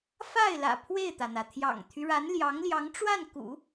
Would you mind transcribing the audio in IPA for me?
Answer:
fa˥˩ɪ̯lä̰˨˩ pʰwe˥˩ɪ̯t̪ä˩n̪ä˩ t̪ʰjɑ̰˨˩ŋt̪ʰy˦ɻa˧˥n ljɑ˧˥ŋljɑ˧˥ŋʈ͡ʂwa˥˩n kṵ˨˩˦

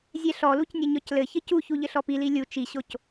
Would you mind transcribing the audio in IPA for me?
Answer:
zʲɛɬɔluc nʲɘɲɔclɘçɘ cuçu ʎɘɬɔpili lʲu t͡ʃiɕoc

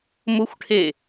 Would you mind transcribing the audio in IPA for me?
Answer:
mʊxʷʈʰe

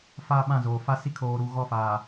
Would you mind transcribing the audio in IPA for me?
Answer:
faː˦ɓã˦˨zoː˨ fa˦si˦ kʰoː˨ɾu˨ ɣɔ˦˨fa˨

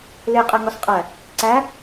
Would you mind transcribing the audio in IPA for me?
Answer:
leqʼæ ŋɔsqʼæ | ǀæ

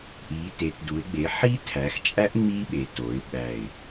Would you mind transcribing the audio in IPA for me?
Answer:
ʔi˩˧te˩˧tdu˩˧ɪ̯ ɡ͡be˩˧ħi˦˥tʰæ˩˧xt͡ʃʼæ˦˥ʔ ŋ͡mi˦˥ɓe˩˧to˩˧ɪ̯ ɓæ˨˩ɪ̯

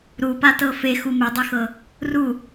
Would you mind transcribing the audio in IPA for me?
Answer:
ɾupatɤ fexu medˤexɤ | ru

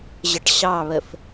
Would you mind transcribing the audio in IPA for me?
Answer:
ʑəʈɕɑβəf

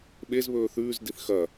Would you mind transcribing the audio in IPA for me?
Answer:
ɓezβɵː θʉːzdiθ xɐ

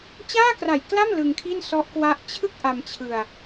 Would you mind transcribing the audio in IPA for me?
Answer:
t͡ɕaː˥˩kra˨˩jkla˥˩m lɯ˧ŋkʰi˥˩nsɔ˦˥ʔ kwa˦˥ʔ t͡ɕʰɯ˥˩k̚ ʔa˧mt͡ɕʰɯ˧a̯

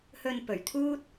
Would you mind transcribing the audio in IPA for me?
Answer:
hɵ˧npɵ˨˩ɥt̪ʰuː˥t̚

